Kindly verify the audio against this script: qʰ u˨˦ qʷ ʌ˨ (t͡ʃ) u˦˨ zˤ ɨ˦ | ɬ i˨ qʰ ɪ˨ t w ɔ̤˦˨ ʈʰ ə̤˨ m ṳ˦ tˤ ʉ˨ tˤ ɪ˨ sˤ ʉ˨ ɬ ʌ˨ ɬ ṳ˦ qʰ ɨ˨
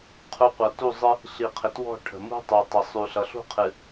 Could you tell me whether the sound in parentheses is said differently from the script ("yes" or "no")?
yes